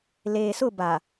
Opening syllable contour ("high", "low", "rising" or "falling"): low